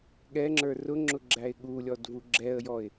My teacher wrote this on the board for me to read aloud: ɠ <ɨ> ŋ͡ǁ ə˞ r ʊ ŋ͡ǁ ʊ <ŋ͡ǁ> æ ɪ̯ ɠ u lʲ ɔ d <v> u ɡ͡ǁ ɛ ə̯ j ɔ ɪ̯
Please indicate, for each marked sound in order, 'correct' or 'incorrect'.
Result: incorrect: ɛ, incorrect: ɡ͡ǁ, correct

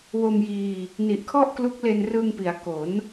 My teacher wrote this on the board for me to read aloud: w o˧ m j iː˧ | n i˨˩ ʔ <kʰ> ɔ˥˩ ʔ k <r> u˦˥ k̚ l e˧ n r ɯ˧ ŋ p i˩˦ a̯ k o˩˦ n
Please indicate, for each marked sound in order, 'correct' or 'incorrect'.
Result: correct, incorrect: l

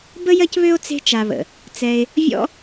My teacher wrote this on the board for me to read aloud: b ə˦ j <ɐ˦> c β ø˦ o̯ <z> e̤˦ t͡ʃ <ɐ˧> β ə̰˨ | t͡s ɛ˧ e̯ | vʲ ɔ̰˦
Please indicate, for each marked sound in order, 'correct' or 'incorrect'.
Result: correct, incorrect: t͡s, incorrect: a˧

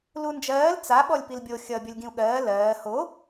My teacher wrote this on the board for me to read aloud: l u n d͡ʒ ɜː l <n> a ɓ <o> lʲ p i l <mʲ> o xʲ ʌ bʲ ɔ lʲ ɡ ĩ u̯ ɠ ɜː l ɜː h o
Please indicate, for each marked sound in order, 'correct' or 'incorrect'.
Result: incorrect: t͡s, incorrect: ɔ, incorrect: bʲ

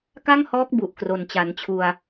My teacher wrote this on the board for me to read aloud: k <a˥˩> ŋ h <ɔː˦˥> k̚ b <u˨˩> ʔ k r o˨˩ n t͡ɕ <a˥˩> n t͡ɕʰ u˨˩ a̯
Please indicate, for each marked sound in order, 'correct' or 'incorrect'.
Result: correct, correct, correct, incorrect: a˩˦

